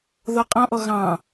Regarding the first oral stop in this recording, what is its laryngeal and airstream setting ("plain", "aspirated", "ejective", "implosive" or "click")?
ejective